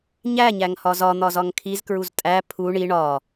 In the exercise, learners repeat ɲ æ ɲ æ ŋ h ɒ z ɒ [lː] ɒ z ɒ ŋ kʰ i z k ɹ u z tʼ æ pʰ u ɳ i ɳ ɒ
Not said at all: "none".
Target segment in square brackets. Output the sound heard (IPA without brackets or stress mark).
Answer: n̪